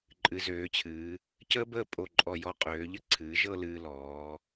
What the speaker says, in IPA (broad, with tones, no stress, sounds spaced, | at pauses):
ǃʼ ɨ˩˧ z øː˩˧ t͡ɕʰ ɨː˩˧ | c əː˥ b əː˥˧ pʼ o˧˩ ǃʼ ɔ˧˩ j ɔ˧ qʼ øː˩˧ ʎ ə˥ ǀʰ ɨː˩˧ ʒ ɤ˥˧ l ɨː˧ l ɔː˩˧